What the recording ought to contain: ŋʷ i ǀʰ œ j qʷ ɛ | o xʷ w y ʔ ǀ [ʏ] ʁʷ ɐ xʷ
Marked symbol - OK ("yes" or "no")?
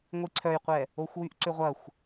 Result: yes